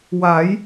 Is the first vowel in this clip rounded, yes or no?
no